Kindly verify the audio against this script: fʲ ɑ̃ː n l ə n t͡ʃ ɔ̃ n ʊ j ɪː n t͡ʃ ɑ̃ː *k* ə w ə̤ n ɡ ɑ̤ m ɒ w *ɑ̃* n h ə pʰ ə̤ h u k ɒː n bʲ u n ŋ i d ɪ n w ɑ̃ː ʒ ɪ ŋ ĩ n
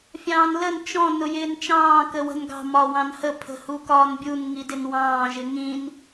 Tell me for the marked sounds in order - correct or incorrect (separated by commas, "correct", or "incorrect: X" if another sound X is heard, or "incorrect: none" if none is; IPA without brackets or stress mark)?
correct, correct